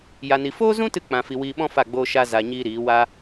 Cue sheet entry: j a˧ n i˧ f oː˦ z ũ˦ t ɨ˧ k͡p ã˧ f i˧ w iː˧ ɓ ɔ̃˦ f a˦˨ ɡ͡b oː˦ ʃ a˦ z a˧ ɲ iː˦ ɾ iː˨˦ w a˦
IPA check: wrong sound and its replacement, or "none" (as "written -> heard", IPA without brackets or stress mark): none